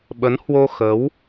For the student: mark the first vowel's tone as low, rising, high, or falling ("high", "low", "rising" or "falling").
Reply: rising